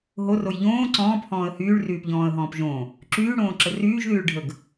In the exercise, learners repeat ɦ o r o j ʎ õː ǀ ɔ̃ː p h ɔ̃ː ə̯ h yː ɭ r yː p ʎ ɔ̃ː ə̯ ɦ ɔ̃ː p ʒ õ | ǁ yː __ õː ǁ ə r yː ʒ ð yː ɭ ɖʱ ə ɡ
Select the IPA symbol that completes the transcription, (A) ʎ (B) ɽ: B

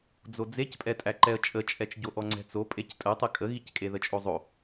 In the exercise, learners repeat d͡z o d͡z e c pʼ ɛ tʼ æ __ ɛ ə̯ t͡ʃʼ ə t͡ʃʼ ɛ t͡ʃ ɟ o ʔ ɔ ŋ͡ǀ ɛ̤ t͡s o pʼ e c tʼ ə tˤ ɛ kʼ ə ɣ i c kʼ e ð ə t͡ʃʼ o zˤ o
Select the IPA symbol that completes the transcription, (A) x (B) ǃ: B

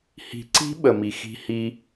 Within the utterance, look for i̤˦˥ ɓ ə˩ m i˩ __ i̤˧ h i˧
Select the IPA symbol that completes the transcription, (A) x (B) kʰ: A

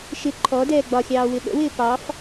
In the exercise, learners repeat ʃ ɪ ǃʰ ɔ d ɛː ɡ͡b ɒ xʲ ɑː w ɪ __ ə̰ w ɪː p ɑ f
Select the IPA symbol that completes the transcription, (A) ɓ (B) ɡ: A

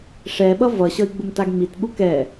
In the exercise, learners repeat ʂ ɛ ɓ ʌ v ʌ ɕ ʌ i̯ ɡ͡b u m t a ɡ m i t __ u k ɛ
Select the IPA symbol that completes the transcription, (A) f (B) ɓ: B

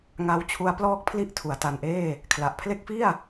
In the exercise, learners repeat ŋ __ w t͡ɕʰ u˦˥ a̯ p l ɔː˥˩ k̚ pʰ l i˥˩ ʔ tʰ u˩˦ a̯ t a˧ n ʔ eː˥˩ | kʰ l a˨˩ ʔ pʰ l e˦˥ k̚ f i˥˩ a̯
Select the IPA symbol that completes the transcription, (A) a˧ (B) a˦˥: B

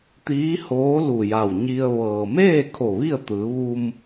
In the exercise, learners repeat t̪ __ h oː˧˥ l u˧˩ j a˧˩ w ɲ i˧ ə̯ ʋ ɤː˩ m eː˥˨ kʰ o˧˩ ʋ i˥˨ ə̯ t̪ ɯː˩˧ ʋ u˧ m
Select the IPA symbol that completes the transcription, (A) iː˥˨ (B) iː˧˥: B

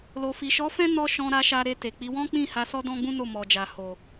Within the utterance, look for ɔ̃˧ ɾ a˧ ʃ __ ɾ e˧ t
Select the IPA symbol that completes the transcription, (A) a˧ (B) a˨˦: A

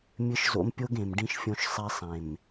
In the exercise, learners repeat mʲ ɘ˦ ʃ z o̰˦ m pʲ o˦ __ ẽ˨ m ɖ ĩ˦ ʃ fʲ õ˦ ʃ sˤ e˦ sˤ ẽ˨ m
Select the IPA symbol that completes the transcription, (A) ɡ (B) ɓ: A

